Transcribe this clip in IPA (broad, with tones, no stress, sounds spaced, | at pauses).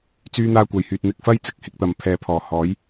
t͡s yː˧ n̪ aː˧ kʷ ɐ˨˩ j h yː˨ t̚ n̪ ɪ˧ k̚ f ɐ˥ j t͡s ɪ˨˥ k̚ h ɪ˧ k̚ t̪ ɐ˨ m pʰ ɛː˨ pʰ ɔː˨˩ h ɔː˨˥ j